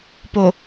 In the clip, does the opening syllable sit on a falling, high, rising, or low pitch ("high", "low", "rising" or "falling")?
low